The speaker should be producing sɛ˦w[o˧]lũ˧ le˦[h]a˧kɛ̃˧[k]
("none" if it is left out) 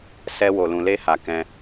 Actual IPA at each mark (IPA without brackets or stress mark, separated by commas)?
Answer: o˧, h, none